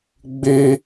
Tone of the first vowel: high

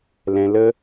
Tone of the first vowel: low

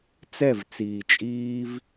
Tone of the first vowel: falling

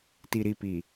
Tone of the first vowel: low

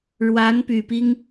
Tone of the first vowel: rising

